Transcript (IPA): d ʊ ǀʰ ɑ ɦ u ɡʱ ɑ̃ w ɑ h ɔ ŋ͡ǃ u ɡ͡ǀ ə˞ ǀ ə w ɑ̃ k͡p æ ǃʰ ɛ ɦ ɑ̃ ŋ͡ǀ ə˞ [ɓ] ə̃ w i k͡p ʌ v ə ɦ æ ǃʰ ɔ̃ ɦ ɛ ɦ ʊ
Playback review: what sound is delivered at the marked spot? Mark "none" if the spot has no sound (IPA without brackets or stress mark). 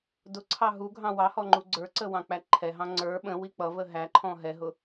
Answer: ɓ